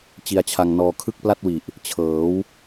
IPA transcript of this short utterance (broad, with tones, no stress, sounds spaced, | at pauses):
t͡ɕ i˧ a̯ t͡ɕʰ a˧ ŋ n ɔː˧ kʰ ɯ˥˩ k̚ p l a˥˩ t̚ w i˨˩ ʔ | t͡ɕʰ ɤː˩˦ w